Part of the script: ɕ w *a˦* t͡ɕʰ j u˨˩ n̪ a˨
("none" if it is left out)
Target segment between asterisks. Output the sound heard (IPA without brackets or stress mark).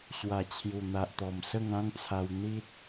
a˨˩